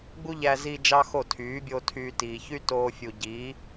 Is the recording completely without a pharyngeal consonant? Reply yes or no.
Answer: yes